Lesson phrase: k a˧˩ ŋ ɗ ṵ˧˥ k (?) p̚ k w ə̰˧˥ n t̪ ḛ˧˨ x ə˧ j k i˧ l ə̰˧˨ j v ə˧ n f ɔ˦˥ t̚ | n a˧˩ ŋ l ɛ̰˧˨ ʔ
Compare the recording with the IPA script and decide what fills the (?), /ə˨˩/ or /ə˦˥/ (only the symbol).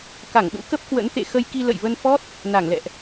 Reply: ə˦˥